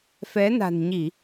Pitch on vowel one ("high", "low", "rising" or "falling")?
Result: rising